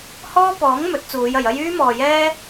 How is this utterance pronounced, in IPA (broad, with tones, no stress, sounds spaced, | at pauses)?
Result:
h ɔː˥ p ɔː˨˥ ŋ m ɵ˨˥ t̚ t͡s uː˨˧ j ɐ˨ j ɐ˥ j yː˥ m ɔː˨ j ɛː˥